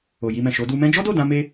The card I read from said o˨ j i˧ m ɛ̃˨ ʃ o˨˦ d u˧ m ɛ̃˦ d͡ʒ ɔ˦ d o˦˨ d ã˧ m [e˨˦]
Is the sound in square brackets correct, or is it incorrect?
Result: incorrect